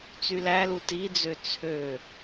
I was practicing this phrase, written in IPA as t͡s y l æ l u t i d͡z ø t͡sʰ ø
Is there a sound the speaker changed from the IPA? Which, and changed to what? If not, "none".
none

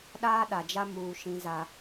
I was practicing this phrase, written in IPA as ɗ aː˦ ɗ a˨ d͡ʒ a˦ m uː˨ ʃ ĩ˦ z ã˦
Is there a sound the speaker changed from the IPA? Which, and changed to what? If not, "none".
ã˦ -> a˦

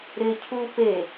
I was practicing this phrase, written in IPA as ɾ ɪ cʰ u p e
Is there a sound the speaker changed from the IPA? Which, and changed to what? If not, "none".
none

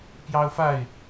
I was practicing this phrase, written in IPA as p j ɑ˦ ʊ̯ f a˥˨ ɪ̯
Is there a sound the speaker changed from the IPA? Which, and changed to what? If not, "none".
none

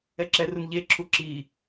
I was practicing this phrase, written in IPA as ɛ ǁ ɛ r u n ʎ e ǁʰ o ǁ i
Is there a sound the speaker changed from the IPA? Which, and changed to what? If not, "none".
o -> u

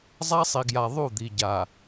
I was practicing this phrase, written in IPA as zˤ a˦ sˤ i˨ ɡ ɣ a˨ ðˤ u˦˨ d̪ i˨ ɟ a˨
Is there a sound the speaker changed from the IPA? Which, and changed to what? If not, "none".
ɣ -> j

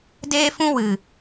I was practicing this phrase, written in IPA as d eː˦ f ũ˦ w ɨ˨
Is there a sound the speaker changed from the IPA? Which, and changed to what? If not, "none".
none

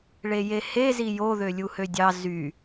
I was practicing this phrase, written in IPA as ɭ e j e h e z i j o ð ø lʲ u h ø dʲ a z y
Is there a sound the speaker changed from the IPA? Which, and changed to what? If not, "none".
a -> ɑ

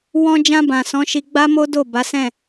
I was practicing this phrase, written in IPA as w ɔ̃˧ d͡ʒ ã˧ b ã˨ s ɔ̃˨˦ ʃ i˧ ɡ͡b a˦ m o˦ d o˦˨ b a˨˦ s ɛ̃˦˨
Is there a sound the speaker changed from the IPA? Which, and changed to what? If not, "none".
none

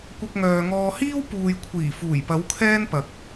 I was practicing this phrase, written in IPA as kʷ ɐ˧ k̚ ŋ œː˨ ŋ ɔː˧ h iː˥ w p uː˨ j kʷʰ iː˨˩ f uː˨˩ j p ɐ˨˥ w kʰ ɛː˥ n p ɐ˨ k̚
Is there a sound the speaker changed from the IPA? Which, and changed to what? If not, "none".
none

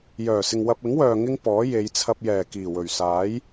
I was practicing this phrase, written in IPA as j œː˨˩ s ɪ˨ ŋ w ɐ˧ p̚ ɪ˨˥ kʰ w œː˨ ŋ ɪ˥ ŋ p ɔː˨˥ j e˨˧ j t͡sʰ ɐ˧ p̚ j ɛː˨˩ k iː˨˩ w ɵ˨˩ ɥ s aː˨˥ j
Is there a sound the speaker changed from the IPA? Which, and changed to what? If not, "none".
kʰ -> ŋ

